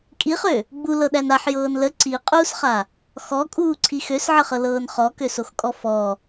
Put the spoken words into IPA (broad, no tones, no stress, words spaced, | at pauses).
kʼiχø | ɡ͡bulɤɗæn aħjɤːn lə ǀiqʼuːsχa | xɔkʼuːǀʰi xøsʕəχɤlɤːn χɔkøsoxkʼɔ fɔ